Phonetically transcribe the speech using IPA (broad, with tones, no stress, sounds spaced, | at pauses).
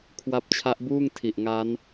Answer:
kʰ w a˦˥ p̚ t͡ɕʰ a˦˥ ʔ b uː˥˩ ŋ tʰ i˨˩ ʔ ŋ a˦˥ n